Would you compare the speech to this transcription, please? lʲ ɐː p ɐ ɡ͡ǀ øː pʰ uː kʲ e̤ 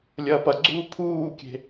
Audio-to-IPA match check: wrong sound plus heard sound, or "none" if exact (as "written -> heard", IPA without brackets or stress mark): øː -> uː